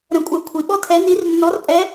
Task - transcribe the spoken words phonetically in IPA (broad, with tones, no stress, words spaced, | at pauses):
ɾə̃˧kʷʼɜ˧ kʷʰi˩ɓɔ˥tʰɛ˧˥ ni˧˥r nːɔ˧˥r pʼɛ˧˥